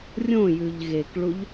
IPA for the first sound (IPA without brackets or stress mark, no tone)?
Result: rʲ